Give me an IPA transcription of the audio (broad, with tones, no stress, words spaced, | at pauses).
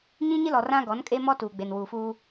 ɲĩ˦ɲɪ˦lɔ˨ rã˦ɡɔ˨˦nkʼe˦mɔ˦ tuː˨ɡ͡be˨nwuː˨fuː˦